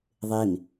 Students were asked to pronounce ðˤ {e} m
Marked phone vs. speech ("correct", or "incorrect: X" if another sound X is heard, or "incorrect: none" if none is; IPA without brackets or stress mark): correct